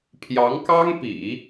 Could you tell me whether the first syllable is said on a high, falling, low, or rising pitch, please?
rising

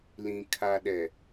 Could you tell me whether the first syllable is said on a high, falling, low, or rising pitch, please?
low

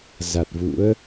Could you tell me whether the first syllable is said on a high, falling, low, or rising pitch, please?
low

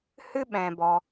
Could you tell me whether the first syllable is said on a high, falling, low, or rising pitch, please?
high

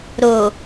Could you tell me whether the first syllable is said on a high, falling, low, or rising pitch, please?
low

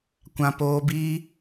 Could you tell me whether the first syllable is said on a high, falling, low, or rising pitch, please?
high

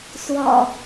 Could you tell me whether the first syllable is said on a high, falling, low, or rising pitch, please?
low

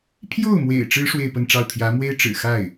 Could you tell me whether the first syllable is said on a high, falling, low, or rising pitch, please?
falling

